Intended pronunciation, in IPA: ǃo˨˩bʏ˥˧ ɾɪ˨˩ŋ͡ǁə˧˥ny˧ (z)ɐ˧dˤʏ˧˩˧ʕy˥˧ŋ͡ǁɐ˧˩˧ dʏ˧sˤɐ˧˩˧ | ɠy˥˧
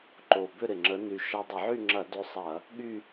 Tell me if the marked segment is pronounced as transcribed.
no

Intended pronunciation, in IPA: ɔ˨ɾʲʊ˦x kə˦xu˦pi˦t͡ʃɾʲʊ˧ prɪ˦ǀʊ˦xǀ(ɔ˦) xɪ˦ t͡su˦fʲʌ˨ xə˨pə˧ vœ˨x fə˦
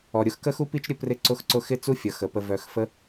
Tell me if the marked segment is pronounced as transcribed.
no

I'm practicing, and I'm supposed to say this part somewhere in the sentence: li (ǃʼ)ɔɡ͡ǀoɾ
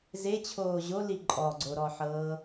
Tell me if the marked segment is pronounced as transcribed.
yes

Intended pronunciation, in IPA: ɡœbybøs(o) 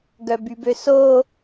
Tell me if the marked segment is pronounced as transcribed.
yes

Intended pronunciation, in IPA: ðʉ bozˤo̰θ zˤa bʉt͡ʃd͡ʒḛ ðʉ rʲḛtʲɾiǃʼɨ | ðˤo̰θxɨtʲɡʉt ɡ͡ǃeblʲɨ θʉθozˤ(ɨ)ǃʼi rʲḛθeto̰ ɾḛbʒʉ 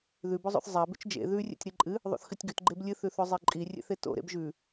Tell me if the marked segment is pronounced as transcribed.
no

